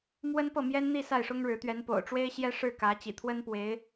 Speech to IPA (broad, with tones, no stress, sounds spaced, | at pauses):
m w ə˥ n p ɤ˥˩ m j ɛ˥ n n̪ i˥˧ s a˥˩ ɪ̯ ʂ ʊ˥ ŋ ɻ ɻ̩˧˥ t̪ ɥ ɛ˧˥ n p o̰˨˩ ʊ̯ ʈ͡ʂ w e˥ ɪ̯ ɕ j ɛ˥ ʂ ɻ̩˥˩ k ä˧˥ t͡ɕ ḭ˨˩ t̪ʰ w ə˥ n p w e˧˥ ɪ̯